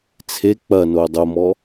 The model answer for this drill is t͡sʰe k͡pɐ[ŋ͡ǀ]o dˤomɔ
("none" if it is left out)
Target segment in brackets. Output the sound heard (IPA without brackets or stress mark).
n